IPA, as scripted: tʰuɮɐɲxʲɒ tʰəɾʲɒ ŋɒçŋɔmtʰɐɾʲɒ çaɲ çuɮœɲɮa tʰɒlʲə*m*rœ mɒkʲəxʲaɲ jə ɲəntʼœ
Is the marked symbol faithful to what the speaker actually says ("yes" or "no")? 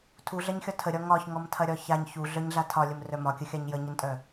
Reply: yes